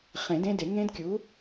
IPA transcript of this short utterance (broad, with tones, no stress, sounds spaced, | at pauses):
χ ẽ˨˩˦ d ẽ˦˥ d e˨˩˦ ŋ ẽ˦˥ d kʲ u˩˥